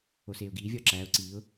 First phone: o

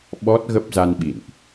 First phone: ɓ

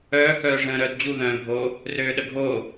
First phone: œː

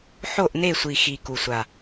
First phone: ħ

